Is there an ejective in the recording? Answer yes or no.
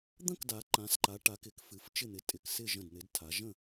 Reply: yes